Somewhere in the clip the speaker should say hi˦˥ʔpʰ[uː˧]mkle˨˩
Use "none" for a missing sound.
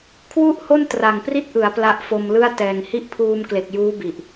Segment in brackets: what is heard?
uː˧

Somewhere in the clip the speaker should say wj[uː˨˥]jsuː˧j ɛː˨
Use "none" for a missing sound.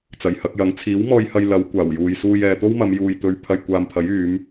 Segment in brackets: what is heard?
uː˨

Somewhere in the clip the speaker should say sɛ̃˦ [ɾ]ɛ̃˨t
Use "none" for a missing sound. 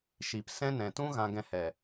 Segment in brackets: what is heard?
n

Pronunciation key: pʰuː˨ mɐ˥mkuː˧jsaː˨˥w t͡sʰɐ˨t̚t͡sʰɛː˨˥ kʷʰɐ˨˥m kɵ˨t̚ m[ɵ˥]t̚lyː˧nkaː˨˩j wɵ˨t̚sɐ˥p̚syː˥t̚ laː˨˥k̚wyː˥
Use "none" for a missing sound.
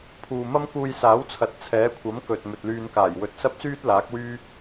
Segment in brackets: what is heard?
ɵ˨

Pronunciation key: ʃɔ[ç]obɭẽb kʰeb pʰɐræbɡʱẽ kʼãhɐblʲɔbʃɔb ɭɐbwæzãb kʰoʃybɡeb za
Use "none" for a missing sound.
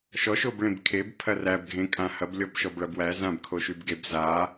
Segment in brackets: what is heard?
ʃ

